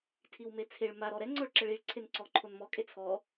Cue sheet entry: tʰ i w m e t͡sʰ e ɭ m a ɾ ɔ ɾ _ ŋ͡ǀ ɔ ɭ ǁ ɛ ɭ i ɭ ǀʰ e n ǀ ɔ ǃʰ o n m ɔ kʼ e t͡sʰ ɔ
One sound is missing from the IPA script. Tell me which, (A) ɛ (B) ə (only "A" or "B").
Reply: A